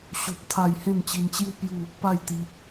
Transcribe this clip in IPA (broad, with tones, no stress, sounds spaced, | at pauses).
ɕ o˦ p̚ t̪ʰ a˥˧ j h ẽ˥˧ n t͡ɕ i˧ n t͡ɕ j u˦ p j u˥˧ | p a˥˧ j t̪ i˧